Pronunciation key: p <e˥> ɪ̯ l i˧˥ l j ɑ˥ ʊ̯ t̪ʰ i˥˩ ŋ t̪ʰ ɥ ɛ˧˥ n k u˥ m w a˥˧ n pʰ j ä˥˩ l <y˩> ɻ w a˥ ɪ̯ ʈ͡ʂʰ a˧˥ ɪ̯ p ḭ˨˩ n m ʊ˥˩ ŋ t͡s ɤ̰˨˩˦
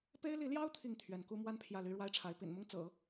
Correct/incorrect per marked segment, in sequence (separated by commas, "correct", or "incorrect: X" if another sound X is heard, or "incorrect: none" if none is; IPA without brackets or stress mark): correct, incorrect: y˥